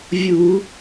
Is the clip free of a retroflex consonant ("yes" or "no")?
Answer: yes